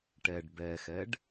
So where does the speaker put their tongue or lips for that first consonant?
retroflex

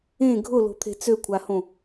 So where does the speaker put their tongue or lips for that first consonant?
velum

